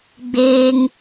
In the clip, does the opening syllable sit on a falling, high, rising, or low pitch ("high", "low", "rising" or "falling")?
high